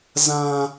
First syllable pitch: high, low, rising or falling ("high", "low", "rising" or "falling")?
high